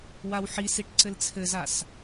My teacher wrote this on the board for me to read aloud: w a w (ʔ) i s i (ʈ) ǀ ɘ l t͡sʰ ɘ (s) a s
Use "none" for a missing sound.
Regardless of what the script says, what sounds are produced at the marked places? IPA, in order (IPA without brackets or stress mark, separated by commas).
ħ, ʈ, z